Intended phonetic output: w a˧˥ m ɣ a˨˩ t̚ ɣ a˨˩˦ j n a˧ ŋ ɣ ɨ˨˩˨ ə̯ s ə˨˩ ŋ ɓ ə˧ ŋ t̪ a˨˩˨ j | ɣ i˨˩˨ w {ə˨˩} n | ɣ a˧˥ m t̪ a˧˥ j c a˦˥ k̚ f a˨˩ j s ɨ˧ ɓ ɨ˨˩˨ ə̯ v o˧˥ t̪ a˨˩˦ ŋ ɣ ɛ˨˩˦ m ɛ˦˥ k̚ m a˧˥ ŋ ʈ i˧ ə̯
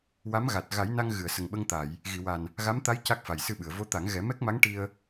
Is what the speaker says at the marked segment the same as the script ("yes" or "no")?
no